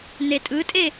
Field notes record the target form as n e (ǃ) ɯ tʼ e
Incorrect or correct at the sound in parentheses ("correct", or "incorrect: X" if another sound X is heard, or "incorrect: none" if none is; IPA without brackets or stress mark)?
incorrect: tʼ